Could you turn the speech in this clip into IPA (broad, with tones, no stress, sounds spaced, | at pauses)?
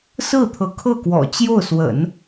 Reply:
s ɹ̩˥˩ t̪ʰ ɤ˧˥ kʰ ɤ˥˩ k w ɔ̰˨˩ t͡ɕ j o˥˩ ʊ̯ s w ə̰˨˩˦ n